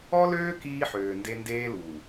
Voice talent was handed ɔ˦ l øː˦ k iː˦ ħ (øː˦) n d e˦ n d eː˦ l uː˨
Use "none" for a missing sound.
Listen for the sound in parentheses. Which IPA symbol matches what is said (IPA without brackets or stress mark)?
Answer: øː˨